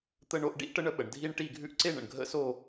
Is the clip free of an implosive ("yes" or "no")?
no